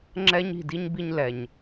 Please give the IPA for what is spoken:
ŋ͡ǁ ɛ˦ ɲ i̤˦˨ d i˦ ɲ b i˦ ɲ l ɛ˨ ɲ

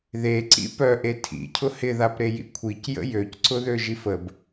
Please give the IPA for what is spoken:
ð e ǀ ḭ p œ ʔ e tʰ ḭ cʰ ʊ h ɪ ð a p ɾ e j ḭ kʷʰ i c j ə̰ j ø c ǀ ʊ ð ø ʒ i f ə b

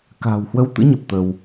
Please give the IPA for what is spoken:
k a̤ː˨˩ w h w ə˨˦ w t̪ ɨ̰˧˥ ɲ ə˨˩ p̚ t̪ ə˧ w

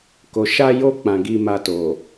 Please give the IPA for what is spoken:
k o˨ ʃ a˧ j o˧ k͡p ã˨ ɡ i˧ m a˧ t o˨

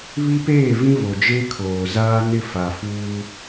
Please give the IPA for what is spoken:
β i˦ p eː˦˨ v ĩ˦ v o˨ d͡ʒ e˦ kʰ oː˨ z aː˦ n ɪ˦˨ f a˨ f uː˦

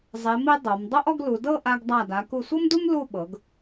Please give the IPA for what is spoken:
zˤ e˩˧ m i˧ dˤ o˩˧ m dˤ o˥ ʔ ɔ˥˧ ɡ l u˩˧ d ɤ˥˧ ʔ a˧ ɡ dˤ a˧˩ d a˩˧ k u˧˩ sʷ ɤ˥ m d u˥ m l u˥˧ ɓ ɤ˩˧ ɡ

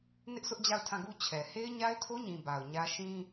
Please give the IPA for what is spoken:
n ɪ˦ ʔ sʰ ʊ˦ ʔ d͡ʑ a˦˨ ʊ̯ tʰ ã˦˨ ɡ u˦ t͡ɕʰ ɛ˨ h e˦ ɪ̯ ɲ a˦ ɪ̯ tʰ o˦ ɲ ĩ˨ b a˨ ʊ̯ ɲ ä˦ ʃ ĩ˦

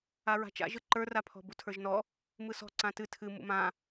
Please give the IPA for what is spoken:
a ɹ a̤ t͡ʃ a̰ ʒ ɯ ǃ ə˞ r a pʰ ɔ̤ b u tʰ ə˞ ʒ n ɔ | m ɯ s ɔ̤ ǀ ã t ɨ tʰ ɨ m ṵ m ã

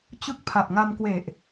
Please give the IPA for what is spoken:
t͡ɕ ɯ˥˩ k̚ pʰ a˨˩ p̚ ŋ a˧ m k w e˨˩ ʔ

